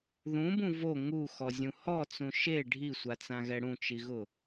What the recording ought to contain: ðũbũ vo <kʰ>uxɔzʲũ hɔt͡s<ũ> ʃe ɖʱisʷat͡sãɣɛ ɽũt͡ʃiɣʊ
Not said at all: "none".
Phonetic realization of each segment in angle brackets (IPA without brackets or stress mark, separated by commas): ŋ, ũ